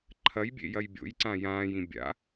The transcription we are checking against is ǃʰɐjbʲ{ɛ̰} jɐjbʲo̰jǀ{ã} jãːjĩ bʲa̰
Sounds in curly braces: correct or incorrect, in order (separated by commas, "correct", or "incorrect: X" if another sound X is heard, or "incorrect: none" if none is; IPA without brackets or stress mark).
incorrect: ḛ, correct